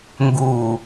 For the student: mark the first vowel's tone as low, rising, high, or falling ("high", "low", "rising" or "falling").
low